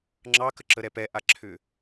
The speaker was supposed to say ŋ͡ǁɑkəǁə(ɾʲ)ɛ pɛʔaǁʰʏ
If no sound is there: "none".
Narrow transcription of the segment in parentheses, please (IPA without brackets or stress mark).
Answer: ɾ